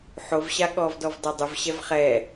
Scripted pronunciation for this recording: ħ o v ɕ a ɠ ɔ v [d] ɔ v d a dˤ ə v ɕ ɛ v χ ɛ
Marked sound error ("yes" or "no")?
no